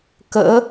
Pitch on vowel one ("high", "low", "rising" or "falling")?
rising